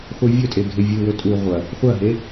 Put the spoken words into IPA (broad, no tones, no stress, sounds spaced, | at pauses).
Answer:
χʷ ɨ vʲ ɵ tʼ e ɡʱ e vʲ ɨ w ɵ tʼ u ʁʷ ɐ | χʷ ɐ ɦ e